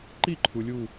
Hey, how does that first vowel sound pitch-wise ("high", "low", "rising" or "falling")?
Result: falling